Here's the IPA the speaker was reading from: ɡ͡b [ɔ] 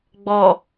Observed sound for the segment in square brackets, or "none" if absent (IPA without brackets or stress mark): ɔ